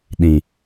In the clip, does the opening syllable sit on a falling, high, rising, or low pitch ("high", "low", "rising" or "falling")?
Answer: low